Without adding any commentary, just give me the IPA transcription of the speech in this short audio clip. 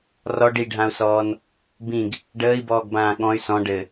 rɔ ɖiɖʱãu̯sɔːn | bĩɡ | ɖəːi̯bɔːɡbãː ɠɔ̃y̯ sɔ̃ ɖɘ

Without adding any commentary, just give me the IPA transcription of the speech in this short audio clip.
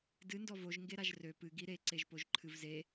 dɨ ndɔvoʒ ŋɡeɾaʒrø pɨ ɡiɾe ǀeʒpoʒǃʰɨvze

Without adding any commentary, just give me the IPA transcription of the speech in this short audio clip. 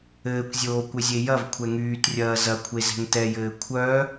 ɘːkʷzʲoːkʷɘzʲe jɐvkʷʰɛ ŋyːtrʲɐː zɐkʷʰezɛ̤ŋ tɛjɘː kʷʰœ

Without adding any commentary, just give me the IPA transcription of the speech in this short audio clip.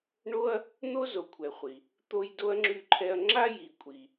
ɳo˥ɐ̯ | n̪o˥zo˨kʷʰɛ˨ χʷi˩ | t̪o˦jdo˥ɐ̯ŋ͡ǁy˦ǃʰɛ˦ɐ̯ ŋ͡ǁa˥ji˨kʷʼi˨

